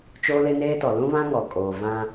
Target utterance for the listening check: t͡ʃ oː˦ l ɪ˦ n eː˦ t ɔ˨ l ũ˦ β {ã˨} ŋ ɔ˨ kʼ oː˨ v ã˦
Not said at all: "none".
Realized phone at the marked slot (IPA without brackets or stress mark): ã˦